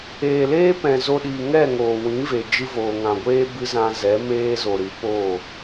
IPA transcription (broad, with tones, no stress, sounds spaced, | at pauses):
eː˨ l eː˦ p ɛ̃˨ z o˧ ɗ iː˨ ŋ ɛ˦˨ ŋ oː˨ w ĩ˨˦ v e˨ d͡ʒ ɨ˧ v oː˨ ŋ ã˨ ɡʷ eː˦ b ɨ˦ z ã˧ z ɛ˨˦ m eː˦ z o˨ ɾ ɨ˨˦ p oː˦˨